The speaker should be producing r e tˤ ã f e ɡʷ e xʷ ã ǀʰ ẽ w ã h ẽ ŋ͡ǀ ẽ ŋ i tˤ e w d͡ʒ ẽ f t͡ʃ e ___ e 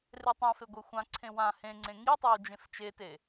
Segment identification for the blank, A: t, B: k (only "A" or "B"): A